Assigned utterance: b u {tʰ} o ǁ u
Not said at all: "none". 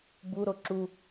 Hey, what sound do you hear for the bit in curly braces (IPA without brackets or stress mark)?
ɾ